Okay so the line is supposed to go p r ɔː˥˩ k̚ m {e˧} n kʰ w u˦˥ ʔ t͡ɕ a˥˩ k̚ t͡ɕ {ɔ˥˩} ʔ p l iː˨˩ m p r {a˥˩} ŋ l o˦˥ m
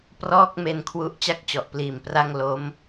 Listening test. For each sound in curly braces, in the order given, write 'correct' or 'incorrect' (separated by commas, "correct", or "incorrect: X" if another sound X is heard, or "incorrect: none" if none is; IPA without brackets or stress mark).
correct, incorrect: ɔ˨˩, correct